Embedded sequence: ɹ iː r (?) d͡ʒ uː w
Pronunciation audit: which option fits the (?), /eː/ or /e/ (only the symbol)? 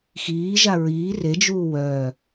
e